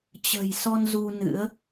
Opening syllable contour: low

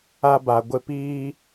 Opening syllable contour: high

